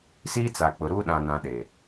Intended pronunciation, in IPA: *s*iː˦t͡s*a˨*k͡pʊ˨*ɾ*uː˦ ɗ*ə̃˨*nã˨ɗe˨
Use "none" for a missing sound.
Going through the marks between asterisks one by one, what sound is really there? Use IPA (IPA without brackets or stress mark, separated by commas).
s, a˨, ɾ, ã˨